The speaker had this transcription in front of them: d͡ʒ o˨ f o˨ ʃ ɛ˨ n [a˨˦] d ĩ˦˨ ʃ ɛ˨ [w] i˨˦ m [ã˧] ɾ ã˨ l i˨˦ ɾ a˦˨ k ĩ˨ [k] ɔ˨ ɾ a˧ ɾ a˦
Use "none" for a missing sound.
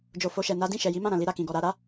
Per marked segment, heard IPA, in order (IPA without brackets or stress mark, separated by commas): a˨˦, j, ã˦˨, ɡ